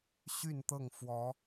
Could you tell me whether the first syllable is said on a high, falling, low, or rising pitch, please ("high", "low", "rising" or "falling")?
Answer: falling